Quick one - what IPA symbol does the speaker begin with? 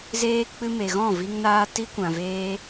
z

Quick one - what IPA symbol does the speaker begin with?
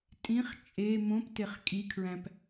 tʼ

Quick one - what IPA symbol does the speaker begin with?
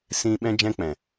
s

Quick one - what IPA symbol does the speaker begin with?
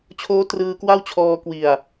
t͡ɕʰ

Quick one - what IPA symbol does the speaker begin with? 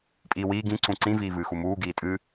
pʼ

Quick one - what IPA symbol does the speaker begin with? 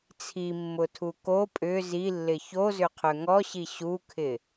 t͡sʰ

